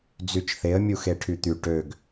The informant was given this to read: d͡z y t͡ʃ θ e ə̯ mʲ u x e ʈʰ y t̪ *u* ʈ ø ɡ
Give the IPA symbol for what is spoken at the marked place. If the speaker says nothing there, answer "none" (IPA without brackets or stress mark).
y